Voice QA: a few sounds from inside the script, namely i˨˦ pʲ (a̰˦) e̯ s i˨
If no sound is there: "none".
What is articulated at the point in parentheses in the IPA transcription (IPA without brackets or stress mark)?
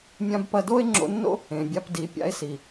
a̰˦